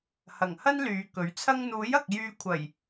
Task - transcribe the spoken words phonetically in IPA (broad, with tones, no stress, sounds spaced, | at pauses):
h ɐ˨˩ ŋ h ɐ˥ n l yː˨˧ k ɵ˨˥ ɥ t͡sʰ ɐ˥ ŋ n̪ uː˨˥ j ɐ˨ k̚ j yː˧ kʷʰ ɐ˨˩ j